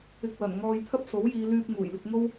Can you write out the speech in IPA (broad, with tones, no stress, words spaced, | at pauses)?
ɪ˧k̚wɐ˨˩n ŋɔː˧jt̪ʰɐ˥p̚so˨˥w jiː˨˧lyː˧p̚ ŋuː˨˩jlɪ˧k̚ŋo˥w